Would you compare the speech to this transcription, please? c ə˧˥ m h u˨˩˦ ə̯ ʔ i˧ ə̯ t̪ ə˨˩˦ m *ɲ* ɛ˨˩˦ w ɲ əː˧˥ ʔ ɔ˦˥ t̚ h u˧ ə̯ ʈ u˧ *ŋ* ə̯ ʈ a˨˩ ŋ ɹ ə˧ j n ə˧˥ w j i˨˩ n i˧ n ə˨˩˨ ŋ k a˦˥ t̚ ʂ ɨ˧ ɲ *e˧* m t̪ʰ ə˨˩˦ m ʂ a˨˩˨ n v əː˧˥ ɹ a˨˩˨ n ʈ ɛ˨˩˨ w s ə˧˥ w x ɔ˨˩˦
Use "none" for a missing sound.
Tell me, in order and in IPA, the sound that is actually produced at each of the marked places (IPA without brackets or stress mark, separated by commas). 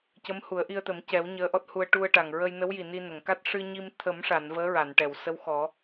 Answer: c, none, i˧